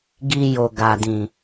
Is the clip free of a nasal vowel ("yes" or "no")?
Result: no